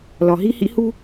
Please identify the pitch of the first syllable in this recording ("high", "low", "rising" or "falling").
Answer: low